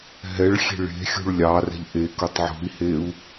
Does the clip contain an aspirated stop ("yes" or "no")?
no